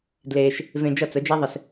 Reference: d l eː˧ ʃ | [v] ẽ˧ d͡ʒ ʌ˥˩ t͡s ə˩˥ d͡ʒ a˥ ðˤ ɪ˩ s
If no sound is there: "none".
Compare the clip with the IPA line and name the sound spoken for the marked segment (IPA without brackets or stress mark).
v